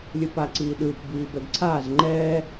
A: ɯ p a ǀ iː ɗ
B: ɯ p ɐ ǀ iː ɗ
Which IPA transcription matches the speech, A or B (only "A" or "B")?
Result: A